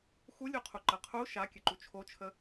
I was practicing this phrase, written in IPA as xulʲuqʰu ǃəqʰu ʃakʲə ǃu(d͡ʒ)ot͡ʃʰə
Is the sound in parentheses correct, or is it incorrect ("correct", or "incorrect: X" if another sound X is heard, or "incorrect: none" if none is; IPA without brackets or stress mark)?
incorrect: t͡ʃʰ